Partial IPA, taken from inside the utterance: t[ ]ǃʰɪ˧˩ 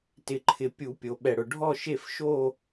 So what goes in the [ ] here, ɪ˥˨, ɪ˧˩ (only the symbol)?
ɪ˧˩